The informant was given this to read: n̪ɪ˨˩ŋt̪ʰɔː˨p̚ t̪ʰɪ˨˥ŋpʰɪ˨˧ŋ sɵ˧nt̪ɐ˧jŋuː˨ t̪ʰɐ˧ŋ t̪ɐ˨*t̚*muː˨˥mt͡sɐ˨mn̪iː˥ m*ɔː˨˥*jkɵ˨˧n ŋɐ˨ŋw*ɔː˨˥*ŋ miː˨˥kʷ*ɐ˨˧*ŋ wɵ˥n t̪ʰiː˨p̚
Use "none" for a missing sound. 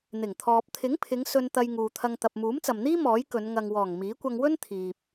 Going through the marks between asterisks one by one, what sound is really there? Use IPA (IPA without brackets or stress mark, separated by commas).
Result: p̚, ɔː˨˥, ɔː˨˩, ɐ˧